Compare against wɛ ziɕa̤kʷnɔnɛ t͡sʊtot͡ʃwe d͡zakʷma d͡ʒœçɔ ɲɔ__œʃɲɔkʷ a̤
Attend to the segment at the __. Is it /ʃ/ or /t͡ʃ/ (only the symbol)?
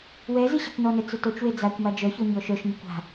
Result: ʃ